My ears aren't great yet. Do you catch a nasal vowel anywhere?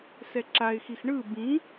yes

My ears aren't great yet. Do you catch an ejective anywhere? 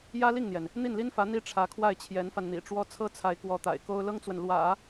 no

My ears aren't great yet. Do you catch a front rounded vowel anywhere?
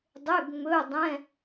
yes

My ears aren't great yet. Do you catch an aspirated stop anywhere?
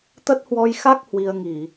no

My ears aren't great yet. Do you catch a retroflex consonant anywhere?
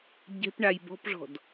yes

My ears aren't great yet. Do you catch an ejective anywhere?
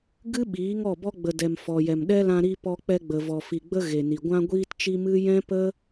no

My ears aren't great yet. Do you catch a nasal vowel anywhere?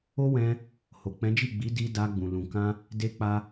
yes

